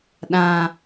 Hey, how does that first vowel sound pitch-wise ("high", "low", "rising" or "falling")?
low